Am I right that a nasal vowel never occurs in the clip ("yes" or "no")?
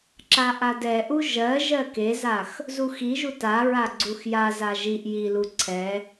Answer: yes